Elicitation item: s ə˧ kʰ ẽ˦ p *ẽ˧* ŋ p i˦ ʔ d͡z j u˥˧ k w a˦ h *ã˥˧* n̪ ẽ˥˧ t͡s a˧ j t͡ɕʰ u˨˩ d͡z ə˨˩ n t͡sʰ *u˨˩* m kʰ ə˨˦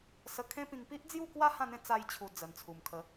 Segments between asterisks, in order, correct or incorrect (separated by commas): incorrect, correct, correct